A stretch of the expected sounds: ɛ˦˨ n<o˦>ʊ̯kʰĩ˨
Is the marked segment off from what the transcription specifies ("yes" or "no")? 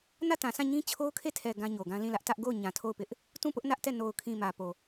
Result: yes